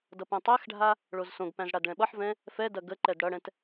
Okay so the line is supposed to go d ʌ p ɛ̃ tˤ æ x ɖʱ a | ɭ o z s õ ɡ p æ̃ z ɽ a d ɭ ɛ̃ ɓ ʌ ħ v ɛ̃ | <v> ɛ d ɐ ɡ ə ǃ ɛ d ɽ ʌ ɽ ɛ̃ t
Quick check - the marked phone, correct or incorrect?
incorrect: f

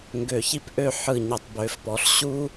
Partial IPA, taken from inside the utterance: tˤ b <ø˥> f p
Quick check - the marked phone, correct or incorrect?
incorrect: ø˩˧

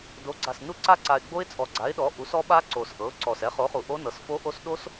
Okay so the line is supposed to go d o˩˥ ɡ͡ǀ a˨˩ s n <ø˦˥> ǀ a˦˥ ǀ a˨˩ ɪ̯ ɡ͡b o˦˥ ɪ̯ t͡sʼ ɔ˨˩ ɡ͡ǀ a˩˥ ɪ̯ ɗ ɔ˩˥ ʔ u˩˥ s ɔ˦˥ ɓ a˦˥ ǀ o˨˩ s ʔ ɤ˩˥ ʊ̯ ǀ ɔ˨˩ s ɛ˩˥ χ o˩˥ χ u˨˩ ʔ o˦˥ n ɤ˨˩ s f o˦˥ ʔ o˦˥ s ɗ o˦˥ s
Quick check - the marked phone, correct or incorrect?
incorrect: u˦˥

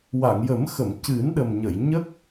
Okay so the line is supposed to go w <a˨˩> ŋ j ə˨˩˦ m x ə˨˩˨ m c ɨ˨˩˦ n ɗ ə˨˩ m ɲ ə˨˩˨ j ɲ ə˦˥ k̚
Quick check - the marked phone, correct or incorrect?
incorrect: a˨˩˨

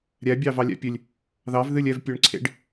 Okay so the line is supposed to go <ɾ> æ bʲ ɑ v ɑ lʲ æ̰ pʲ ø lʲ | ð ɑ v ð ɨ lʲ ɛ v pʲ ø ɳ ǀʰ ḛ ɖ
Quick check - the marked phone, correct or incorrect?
incorrect: ɾʲ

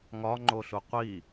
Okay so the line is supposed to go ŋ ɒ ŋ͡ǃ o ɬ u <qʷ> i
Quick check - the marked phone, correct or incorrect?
correct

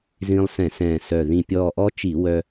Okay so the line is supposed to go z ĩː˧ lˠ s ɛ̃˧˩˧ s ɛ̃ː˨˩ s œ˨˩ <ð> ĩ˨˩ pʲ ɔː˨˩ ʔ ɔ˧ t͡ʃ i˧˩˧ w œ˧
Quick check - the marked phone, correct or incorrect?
correct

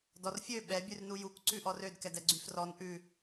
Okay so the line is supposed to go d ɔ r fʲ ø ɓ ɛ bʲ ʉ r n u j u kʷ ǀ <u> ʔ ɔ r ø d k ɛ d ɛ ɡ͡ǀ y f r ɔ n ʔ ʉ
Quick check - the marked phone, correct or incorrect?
incorrect: ʉ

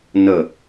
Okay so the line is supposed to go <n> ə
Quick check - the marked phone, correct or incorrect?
correct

